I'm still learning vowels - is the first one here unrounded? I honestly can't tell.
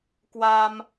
yes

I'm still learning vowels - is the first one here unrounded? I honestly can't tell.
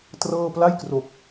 yes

